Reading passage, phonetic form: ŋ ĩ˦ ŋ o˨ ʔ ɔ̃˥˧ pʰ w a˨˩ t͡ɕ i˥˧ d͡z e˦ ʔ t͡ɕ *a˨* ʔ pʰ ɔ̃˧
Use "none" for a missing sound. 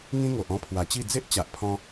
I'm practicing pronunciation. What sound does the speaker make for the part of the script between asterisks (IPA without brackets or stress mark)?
a˨